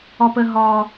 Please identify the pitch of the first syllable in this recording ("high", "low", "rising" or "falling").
high